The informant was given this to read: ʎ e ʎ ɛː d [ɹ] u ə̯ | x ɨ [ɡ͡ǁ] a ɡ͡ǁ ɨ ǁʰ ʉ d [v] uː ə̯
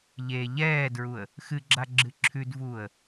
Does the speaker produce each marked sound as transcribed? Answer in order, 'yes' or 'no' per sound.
yes, yes, yes

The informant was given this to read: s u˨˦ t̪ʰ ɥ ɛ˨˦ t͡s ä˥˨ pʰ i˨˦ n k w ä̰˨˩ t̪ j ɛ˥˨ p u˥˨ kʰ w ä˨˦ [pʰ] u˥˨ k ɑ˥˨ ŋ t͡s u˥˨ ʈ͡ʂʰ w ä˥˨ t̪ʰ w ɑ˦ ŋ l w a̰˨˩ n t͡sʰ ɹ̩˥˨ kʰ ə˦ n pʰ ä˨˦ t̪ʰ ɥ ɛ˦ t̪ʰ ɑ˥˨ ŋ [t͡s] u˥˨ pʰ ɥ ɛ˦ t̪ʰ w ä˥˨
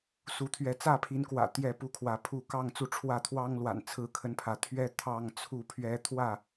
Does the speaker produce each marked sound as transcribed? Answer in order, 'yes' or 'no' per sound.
yes, no

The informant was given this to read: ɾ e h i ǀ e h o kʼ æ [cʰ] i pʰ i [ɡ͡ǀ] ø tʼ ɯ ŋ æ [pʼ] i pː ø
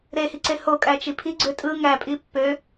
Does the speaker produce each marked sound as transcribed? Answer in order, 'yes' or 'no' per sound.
no, yes, yes

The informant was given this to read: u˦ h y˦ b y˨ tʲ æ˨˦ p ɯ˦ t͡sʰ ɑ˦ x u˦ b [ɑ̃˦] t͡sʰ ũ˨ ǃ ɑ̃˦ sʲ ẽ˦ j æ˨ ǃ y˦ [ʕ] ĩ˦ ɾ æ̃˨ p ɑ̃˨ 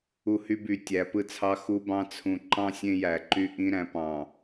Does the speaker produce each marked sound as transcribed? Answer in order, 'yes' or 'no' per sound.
yes, no

